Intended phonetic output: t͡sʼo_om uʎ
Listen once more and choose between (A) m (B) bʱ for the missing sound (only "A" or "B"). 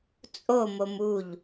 A